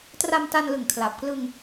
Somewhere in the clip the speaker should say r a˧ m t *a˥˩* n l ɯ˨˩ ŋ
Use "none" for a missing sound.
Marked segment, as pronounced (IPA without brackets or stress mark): a˧